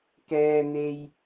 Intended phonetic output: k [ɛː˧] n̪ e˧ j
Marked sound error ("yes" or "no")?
no